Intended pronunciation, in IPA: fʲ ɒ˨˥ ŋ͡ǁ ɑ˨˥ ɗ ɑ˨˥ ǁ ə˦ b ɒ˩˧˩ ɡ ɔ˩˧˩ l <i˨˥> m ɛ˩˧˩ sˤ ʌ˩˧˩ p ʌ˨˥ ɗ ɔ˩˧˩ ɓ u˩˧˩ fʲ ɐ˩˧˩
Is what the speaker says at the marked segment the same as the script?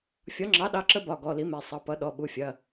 yes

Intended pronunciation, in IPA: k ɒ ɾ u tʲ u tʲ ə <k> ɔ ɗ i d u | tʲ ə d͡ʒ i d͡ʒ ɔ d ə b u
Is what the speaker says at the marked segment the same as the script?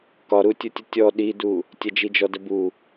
no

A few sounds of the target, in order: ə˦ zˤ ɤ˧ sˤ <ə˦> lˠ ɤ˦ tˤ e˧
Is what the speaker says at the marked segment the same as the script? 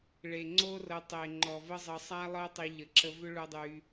no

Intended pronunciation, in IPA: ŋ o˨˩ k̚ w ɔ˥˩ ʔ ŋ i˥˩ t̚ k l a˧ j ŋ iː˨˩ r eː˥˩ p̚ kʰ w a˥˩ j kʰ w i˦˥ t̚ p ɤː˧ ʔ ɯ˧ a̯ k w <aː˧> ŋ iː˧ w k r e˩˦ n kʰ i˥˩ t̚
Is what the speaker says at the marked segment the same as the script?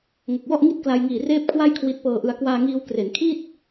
yes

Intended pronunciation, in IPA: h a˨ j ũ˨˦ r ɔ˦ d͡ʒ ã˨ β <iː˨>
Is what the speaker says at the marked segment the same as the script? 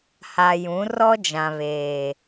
no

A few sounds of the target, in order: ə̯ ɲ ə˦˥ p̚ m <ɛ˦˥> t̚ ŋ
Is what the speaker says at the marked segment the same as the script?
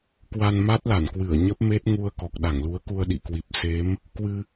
no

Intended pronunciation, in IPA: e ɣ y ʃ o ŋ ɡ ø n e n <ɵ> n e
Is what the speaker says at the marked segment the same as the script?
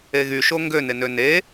no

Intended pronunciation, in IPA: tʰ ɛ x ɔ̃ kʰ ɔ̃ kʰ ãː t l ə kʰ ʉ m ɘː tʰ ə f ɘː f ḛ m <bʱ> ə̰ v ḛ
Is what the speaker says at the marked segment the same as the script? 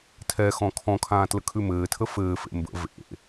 no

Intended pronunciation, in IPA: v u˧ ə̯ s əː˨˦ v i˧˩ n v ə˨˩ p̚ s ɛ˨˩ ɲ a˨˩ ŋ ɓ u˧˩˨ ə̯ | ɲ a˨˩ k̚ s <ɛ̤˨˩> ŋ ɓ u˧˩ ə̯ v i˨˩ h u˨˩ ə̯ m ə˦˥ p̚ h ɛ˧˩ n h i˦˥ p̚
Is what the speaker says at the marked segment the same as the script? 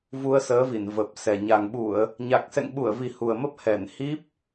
no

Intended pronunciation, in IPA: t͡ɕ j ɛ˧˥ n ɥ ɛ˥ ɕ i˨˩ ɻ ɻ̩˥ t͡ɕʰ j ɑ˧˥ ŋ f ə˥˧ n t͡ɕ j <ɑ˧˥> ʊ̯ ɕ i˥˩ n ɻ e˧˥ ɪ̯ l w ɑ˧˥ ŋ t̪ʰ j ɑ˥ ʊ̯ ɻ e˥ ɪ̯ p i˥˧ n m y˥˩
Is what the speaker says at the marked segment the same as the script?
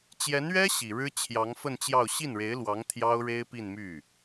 no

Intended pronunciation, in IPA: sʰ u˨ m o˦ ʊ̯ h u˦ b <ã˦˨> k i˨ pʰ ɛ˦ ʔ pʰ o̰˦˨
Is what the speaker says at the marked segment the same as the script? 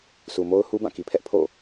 yes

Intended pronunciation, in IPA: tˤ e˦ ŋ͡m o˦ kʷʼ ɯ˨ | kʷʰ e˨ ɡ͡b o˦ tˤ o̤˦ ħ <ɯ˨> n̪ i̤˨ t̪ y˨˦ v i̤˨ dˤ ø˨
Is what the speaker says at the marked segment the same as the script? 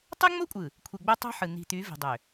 yes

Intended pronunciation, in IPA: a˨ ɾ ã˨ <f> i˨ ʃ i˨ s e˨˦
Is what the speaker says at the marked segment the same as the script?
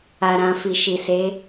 yes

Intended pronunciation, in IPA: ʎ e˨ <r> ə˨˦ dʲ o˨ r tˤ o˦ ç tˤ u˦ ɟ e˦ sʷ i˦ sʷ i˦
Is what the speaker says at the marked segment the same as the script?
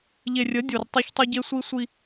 no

